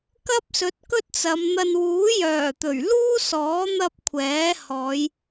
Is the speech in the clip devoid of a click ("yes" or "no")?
yes